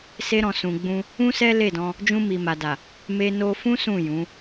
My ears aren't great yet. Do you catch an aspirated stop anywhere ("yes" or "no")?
no